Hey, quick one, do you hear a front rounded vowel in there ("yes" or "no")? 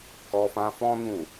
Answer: no